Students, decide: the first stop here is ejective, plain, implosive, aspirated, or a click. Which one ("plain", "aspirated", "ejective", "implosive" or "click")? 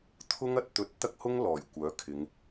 aspirated